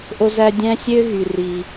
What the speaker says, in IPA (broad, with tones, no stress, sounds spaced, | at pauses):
ʔ o˦ z æ˦ dʲ æ̃˦ sʲ ø˥ ɣ y˨ r i˨